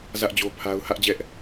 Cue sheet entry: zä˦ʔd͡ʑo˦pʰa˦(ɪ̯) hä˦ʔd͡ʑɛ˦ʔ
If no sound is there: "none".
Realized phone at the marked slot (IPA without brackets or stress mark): ʊ̯